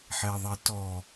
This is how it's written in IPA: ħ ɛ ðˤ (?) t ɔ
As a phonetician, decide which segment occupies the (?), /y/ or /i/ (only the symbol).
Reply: i